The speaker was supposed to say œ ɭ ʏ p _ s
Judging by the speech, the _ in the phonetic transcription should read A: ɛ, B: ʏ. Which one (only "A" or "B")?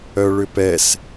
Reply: A